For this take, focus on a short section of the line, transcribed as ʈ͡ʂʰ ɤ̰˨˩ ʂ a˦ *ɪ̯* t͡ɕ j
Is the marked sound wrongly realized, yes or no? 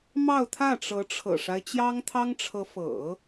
no